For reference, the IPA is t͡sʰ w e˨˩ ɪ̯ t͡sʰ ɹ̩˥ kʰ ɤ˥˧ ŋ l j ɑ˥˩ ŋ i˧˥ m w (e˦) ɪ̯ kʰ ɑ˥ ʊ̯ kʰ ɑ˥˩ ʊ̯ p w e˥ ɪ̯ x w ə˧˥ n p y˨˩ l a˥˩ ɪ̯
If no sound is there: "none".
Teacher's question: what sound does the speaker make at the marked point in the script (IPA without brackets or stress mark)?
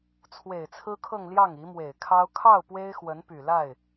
e˨˩